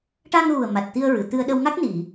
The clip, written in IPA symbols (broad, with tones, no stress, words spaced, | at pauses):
ʈa˧ŋɣu˨˩ə̯ma˨˩t̚ t̪i˧ə̯ ɹɨ˨˩˨t̪ɨ˧ə̯ ɗə˧wŋa˦˥k̚ni˨˩˨